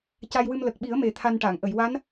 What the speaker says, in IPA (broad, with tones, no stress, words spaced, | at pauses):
ca˧jwɨ˧m lə˨˩k̚ɓi˨˩˦ə̯me˨˩ t̪ʰa˧nʈa˨˩˨ŋ ʔə˨˩˨jwa˧˥n